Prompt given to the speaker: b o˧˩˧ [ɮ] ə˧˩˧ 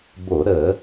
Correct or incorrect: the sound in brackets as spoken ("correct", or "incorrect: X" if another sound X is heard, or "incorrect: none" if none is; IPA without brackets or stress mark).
incorrect: ɾ